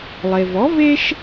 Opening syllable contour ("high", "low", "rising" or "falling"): low